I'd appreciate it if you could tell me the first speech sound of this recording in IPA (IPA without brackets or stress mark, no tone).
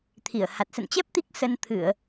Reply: t̪ʰ